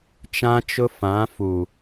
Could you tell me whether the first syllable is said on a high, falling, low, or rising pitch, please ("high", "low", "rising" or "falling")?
high